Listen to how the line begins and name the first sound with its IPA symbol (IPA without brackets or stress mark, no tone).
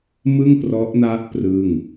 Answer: m